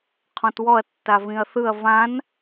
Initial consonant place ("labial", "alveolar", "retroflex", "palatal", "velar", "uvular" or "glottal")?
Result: uvular